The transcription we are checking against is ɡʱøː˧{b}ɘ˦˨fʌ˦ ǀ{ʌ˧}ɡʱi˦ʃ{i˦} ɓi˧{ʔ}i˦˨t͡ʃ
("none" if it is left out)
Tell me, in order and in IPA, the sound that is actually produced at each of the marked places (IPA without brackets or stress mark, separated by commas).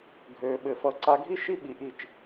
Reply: ɓ, a˧, i˦, ʔ